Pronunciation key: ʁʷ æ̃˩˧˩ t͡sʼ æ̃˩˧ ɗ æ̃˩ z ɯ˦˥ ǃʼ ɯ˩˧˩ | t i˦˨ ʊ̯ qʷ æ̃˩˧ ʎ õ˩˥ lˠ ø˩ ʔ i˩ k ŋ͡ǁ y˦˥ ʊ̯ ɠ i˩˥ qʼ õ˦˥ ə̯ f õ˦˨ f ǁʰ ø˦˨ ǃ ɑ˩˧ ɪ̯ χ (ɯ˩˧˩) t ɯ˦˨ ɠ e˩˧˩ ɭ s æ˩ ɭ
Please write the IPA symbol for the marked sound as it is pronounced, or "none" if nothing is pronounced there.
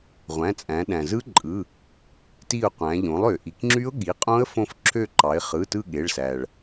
ɯ˩˧˩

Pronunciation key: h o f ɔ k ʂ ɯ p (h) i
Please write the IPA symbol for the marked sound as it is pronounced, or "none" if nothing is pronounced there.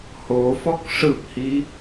h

